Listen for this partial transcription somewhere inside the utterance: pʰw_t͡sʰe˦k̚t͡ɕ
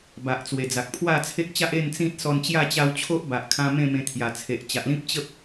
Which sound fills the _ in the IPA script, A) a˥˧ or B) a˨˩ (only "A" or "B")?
A